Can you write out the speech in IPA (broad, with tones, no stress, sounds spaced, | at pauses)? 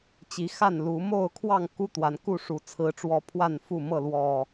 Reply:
t͡ɕ i˨˦ x a˥˨ n l u˨˦ m o˥˨ ʊ̯ kʰ w ɑ˥˨ ŋ k u˦ t̪ w a˨˦ n k u˥˨ ʂ u˨˦ t͡sʰ ɹ̩˨˦ ʈ͡ʂ w ɔ˦ pʰ w a˥˨ n f u˥˨ m ɤ˥˨ l w ɔ˨˩